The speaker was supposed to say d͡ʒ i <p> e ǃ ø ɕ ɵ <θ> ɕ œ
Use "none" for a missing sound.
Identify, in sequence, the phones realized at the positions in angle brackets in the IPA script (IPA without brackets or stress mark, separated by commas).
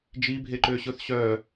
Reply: bʱ, θ